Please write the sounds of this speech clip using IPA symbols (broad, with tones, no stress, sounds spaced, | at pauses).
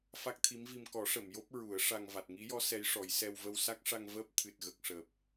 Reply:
f a˦˥ k̚ t̪ʰ i˧˥ m v i˧ m k ɔ˨˩˦ ʂ ə˨˩˨ m j o˦˥ p̚ ɹ u˨˩˦ ə̯ ʂ a˧ ŋ v a˨˩ t̚ ŋ i˧˥ j ɔ˧˥ s ɛ˧˥ j ʂ ɔ˨˩˦ j s ɛ˧ w v ə˧ w s a˦˥ k̚ ʂ a˧ ŋ v əː˦˥ p̚ t̪ʰ ɨ˨˩ t̚ ɣ ə˨˩ k̚ ʂ əː˨˩ p̚